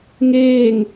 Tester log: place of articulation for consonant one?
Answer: velar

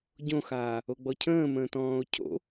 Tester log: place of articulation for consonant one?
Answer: palatal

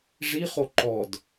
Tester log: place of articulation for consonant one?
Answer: retroflex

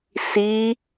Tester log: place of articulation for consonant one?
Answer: alveolar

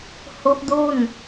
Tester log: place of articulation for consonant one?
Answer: glottal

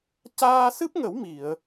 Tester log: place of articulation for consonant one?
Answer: palatal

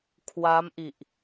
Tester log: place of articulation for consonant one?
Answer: velar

